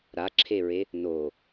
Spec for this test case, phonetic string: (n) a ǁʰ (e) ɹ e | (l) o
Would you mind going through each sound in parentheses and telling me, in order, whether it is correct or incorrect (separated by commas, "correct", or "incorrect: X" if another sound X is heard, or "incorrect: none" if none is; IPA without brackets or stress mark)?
incorrect: ɾ, correct, incorrect: n